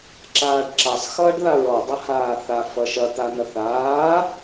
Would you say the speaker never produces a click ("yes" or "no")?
no